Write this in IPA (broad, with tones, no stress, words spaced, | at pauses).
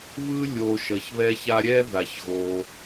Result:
βɯ˥ lʲo˨ʃʌ˩çβɛ˦ça˦ ɾʲɛ˥ða˩çɣo˩